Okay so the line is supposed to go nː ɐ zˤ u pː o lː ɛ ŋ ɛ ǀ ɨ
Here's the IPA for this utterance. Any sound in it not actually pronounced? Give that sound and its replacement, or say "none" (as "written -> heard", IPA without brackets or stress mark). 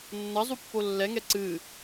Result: none